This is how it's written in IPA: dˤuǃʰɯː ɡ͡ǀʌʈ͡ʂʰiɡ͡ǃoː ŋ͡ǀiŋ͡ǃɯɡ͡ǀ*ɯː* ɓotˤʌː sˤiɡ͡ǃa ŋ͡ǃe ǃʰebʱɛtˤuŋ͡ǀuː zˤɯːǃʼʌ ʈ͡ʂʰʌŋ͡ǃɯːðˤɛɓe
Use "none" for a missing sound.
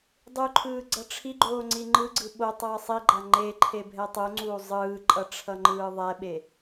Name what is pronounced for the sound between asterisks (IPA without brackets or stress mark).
ɯ